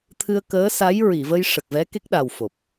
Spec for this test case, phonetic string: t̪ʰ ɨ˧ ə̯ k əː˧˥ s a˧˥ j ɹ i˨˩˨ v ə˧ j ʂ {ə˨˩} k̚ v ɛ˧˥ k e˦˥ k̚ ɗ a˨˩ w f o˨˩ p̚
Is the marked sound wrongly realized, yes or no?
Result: no